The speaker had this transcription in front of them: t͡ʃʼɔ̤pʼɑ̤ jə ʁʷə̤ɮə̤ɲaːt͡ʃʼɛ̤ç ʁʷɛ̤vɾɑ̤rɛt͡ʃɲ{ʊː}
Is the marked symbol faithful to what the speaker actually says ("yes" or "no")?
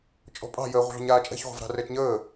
no